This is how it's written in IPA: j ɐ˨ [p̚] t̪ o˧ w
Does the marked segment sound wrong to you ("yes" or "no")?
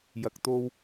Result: yes